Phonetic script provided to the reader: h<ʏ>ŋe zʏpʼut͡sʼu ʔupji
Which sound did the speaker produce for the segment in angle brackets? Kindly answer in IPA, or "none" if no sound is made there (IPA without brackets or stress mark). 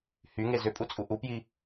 y